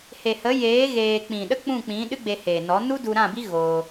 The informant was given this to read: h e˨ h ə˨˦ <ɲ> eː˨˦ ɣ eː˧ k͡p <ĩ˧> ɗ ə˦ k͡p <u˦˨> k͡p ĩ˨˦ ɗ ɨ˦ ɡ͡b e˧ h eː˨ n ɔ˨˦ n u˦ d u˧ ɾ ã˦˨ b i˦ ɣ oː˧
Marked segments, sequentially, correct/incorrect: incorrect: j, incorrect: ĩ˨, incorrect: ũ˦˨

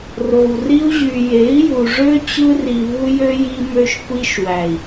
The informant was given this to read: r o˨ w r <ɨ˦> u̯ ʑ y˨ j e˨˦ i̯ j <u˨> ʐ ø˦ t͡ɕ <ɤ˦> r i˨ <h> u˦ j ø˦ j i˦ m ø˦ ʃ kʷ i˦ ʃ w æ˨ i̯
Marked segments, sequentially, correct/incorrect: incorrect: i˦, correct, incorrect: ɯ˦, incorrect: β

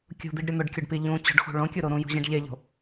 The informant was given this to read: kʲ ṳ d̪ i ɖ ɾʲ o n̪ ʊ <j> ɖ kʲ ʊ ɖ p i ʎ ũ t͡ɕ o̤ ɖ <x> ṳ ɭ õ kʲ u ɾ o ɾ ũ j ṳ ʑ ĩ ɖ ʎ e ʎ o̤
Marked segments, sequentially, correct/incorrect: incorrect: none, correct

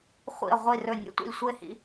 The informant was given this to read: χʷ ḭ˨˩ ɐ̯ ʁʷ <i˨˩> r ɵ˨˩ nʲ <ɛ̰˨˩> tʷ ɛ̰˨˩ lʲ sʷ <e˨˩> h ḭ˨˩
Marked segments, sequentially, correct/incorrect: correct, incorrect: ɛ̰˧˥, correct

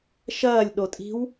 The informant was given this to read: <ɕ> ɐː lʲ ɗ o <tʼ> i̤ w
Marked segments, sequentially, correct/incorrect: incorrect: ʃ, correct

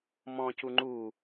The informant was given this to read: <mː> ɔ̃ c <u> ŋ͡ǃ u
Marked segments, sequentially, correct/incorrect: incorrect: m, correct

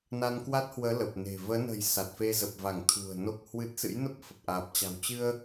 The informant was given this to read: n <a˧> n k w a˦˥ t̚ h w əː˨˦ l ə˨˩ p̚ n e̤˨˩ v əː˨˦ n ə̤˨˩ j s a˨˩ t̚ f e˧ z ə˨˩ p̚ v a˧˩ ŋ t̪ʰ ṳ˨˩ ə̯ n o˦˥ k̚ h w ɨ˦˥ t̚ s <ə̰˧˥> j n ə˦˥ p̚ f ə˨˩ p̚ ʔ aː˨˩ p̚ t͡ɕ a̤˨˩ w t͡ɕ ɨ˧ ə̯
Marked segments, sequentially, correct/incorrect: correct, incorrect: ɨ̰˧˥

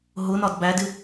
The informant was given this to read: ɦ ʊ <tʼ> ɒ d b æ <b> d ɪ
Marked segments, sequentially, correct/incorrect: incorrect: n, incorrect: none

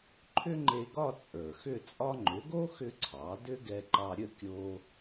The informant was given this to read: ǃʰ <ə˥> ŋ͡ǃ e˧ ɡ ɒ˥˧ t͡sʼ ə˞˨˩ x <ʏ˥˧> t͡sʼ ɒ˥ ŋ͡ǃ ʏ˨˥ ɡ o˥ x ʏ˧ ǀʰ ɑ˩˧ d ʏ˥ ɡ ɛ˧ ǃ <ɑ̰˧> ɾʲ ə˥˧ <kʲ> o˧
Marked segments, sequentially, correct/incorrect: incorrect: ʏ˥, correct, incorrect: ɑ˧, correct

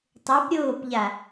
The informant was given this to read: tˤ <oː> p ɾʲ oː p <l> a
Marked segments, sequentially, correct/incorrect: incorrect: o, incorrect: ʎ

